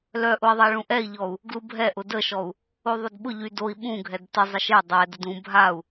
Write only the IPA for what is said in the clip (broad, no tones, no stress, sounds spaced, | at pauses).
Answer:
l œ ʔ ʊ i̯ ðˤ a ɭ ũ ʔ ɛ i̯ ʎ ɔ u̯ | ɡ l u bʱ ɛ ʔ ʊ d ə ʃ ɔ u̯ | o ðˤ ʊ d ɓ ʊ ʎ y d o i̯ ɓ ũ ɡʱ ɛ d t ə zˤ ɪ ʃ e dˤ ɛ d ə d ũ bʱ a u̯